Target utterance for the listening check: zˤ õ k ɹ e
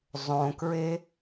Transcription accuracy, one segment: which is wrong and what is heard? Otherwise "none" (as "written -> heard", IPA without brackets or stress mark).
none